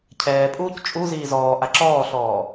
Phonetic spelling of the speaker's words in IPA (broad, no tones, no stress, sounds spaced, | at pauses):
cʰ ɛː pʼ uː c t͡ʃʼ u z iː z ɔː ʔ a ǁ ɔː ɬ ɔː